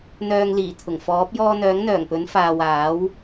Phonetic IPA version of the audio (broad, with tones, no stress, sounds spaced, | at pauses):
n̪ œː˨ ŋ l iː˨˩ t̪ʰ ʊ˨˩ ŋ f ɔː˨˥ p̚ j ɔː˧ n̪ œː˨˥ ŋ n̪ œː˨˩ ŋ p ɵ˨˥ n f aː˨ w aː˨˥ w